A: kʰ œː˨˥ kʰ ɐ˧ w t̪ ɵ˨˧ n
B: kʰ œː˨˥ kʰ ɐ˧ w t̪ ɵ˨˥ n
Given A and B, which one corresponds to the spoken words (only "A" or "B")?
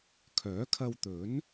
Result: B